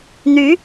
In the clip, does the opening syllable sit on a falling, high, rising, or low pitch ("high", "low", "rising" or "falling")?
rising